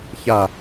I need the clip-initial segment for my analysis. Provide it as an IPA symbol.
ç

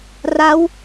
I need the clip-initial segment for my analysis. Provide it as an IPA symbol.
r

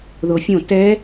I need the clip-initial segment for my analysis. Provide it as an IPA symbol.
ð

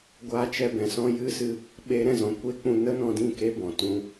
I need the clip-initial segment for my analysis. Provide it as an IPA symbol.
ɡʷ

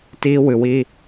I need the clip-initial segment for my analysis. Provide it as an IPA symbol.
t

